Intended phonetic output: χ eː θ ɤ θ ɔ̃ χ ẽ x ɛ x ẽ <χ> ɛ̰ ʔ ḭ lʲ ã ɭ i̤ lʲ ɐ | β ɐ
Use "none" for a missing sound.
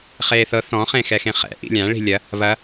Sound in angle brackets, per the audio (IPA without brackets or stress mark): χ